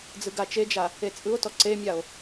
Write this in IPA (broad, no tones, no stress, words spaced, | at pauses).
d͡zɯɡat͡ʃed͡ʒa | et͡sʼɯo̯tɔ ǀemʲao̯